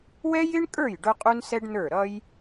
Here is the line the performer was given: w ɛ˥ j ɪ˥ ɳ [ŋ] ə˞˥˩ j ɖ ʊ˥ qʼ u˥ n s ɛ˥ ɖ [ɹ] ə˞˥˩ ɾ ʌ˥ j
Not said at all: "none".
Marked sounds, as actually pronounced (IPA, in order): kʼ, n

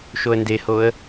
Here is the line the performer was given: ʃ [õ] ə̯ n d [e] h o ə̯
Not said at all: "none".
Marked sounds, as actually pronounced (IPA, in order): o, e

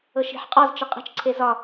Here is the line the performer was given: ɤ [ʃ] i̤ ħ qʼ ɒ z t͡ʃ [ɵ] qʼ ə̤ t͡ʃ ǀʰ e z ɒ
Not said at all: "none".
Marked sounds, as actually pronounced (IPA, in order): ʃ, ə

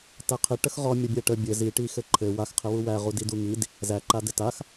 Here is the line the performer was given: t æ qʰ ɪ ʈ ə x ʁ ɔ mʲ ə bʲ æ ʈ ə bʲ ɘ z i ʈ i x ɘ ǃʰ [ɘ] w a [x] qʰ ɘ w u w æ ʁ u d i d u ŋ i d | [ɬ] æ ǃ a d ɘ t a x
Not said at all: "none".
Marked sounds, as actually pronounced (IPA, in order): ɘ, x, z

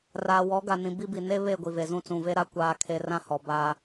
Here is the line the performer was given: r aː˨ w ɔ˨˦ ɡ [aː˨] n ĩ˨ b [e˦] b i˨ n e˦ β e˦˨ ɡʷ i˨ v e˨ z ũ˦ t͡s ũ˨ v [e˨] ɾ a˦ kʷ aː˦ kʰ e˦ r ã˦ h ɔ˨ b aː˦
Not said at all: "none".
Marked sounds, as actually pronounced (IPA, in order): a˨, i˦, e˦

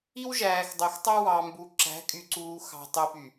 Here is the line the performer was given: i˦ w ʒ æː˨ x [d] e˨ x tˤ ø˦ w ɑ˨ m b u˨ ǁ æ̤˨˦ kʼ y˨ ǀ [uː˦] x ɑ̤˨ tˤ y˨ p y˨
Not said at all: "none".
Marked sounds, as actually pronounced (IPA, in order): dˤ, uː˨

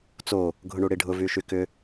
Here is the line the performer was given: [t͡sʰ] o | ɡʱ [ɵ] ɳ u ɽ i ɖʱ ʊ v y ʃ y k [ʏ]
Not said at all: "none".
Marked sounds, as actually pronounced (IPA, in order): t͡s, ʊ, ʏ

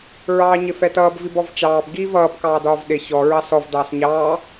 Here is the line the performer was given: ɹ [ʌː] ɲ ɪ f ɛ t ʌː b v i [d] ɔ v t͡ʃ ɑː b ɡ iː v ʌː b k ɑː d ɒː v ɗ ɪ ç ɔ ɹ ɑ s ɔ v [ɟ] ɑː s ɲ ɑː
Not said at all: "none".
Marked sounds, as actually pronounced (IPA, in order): ɑː, b, d

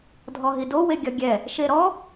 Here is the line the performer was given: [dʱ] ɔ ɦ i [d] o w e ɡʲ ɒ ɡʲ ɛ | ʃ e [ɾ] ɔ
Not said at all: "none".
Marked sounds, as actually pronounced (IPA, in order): dʱ, d, ɾ

